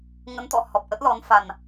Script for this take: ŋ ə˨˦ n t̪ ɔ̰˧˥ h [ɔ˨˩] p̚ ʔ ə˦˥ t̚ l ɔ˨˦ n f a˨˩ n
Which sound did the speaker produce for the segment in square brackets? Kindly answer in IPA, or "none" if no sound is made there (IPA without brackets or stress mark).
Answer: ɔ˨˩